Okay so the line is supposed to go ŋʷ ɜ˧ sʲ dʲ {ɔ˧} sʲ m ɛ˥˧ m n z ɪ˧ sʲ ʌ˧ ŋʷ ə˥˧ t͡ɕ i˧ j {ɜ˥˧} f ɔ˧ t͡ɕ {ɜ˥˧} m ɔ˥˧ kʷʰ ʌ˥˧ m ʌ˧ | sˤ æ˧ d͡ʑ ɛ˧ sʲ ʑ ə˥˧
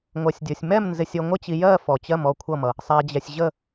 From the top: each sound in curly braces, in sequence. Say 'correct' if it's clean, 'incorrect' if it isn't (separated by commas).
correct, correct, correct